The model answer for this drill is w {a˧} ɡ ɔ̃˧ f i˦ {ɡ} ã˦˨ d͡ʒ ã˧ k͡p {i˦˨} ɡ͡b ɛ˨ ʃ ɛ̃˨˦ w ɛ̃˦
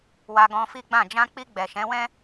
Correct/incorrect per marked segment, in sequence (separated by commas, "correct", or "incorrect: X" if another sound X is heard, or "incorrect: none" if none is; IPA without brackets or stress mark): correct, incorrect: ɡ͡b, incorrect: i˧